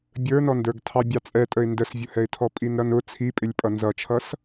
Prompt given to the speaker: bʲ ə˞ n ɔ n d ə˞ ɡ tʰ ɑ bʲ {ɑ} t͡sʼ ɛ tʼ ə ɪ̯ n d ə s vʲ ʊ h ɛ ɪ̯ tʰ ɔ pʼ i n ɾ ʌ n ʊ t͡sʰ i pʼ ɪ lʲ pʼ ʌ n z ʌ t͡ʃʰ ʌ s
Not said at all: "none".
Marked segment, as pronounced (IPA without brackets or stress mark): ɑ